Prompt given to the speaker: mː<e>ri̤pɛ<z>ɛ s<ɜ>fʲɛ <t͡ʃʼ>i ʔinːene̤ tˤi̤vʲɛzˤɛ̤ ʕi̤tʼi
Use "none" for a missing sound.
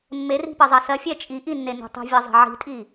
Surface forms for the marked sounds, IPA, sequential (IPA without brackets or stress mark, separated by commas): e, zˤ, ɜ, t͡ʃʼ